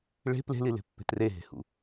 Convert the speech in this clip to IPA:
ɭ e̤ p l e̤ l i l e̤ pː e̤ t r e ɦ e̤ h ṵ

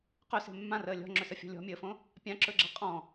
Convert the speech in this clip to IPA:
q ɵ s e̤ mː ã r əː lʲ ɔ̤ ŋ͡ǁ ɵ s ə fʲ ɔ̤ lʲ ɔ̤ mʲ əː f õ | pʲ ã ǁ ɵ ɡ͡ǁ a qʼ ɔ̃

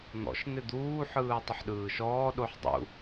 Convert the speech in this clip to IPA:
n̪ ɔ̰ ʃ n̪ ɪ d̪ uː ħ ɯː tˤ ɪ ħ ɗ ɯː ʃ ɔː ɗ o ħ dˤ ṵ

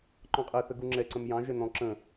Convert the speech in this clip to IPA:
ǃ ɔ̃ qʼ ɛ θ ə ɡ u ŋ͡ǁ ɛ ǀ ə̃ m j ɑ̃ ʒ ɛ n ɔ̃ ǁ ə̃

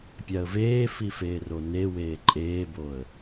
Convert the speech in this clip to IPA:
pʲ a ə̯ v eː f i f eː r o n e w eː ǃʼ eː b o ə̯

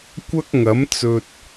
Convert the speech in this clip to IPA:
kʷ ɐ˥ k̚ ŋ ɐ˨˥ m t͡s ɵ˧ t̚

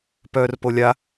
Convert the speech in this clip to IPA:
p œː r p o lʲ a

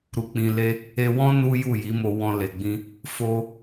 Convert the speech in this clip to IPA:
ɾ u˧ k͡p ĩ˧ l e˦ | e˧ w ɔ̃˦ n u˦ j u˦˨ j i˨˦ m o˧ w ɔ̃˧ l e˨ ɡ͡b ĩ˧ | f o˧

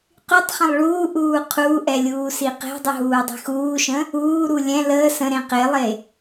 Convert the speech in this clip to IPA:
q y tˤ χ ə̃ lˠ ɭ uː ʔ uː qʰ uː ʔ ɛ lʲ uː s i q e̤ dˤ u ɦ uː dˤ i̤ x uː ʃ ə̃ | uː ɾ u lʲ ɛ̃ l əː s ə̃ ɾ ẽ q e lˠ e

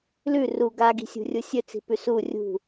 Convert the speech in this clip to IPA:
l ʉ r u ɡ a ɡ i̤ sʲ ṳ rʲ u sʲ ɵ t͡s i̤ p ʉ s u rʲ ṳ

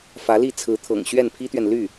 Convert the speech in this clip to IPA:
f ä˧˥ l i˥˩ t͡sʰ ɹ̩˧˥ t̪ʰ ɤ̰˨˩ ŋ ɕ ɥ ɛ˥˩ n pʰ i˥ t̪ ɥ ɛ˨ n l y˥˩

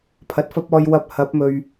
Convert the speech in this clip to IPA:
pʰ ɐ˨ t̚ f ɐ˥ p̚ ɔː˧ j w ɐ˨ p̚ h ɐ˨˥ p̚ m ɵ˨ ɥ

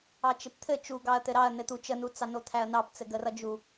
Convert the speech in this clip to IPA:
ɑ t͡ʃ ɘ p t̪ʰ ɘ t͡ʃ u ɡ ɑ ɐ̯ t̪ ɘ ɾ ɑ ɐ̯ n ɘ t̪ u t͡ʃ ə n u t͡s ɑ n o t̪ʰ æ ɐ̯ n ɑ p t͡s ɘ ɡ ə r ʌ d͡ʒ u

